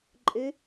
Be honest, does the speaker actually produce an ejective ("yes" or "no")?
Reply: yes